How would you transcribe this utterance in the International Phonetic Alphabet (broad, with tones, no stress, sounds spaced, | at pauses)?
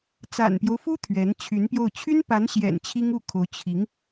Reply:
t͡s a̰˨˩ n p j o˦ ʊ̯ f u˥ t̪ʰ ɥ ɛ˧˥ n t͡ɕʰ y˧˥ n p j o˥˩ ʊ̯ t͡ɕʰ y˥ n p a˧˥ n ɕ j ɛ̰˨˩ n t͡ɕʰ i˥ ŋ u˥˩ kʰ o˧˥ ʊ̯ t͡ɕʰ i˧˥ ŋ